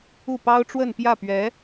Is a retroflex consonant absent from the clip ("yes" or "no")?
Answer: no